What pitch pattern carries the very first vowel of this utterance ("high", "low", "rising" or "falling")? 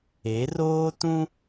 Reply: rising